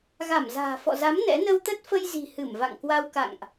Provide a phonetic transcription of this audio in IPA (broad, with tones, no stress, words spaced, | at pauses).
ɣa˧˩mza̤ː˨˩ fɔ̰˧˨za˨˦m nɛ̰˧˥ nə˧wt̪ə˦˥t̚fə˧jzi̤˨˩ hɨ˧˩mva̰˧˨ŋkwa˧w ka̰˧˨ŋʔ